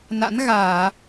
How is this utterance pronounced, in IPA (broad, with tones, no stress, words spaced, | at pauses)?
na̰˧˥nɣaː˧˩˨